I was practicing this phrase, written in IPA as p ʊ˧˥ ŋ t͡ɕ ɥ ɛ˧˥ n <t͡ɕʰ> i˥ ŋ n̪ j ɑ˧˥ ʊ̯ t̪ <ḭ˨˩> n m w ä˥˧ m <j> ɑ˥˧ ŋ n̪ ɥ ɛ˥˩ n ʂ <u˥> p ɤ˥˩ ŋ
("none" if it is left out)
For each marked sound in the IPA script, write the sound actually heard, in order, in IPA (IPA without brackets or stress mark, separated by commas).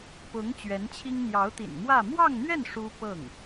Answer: t͡ɕʰ, ḭ˨˩, w, u˥